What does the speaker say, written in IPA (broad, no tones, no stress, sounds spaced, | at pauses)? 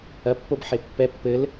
ɐ pː o b ħ e pː ɛ pː ɘ l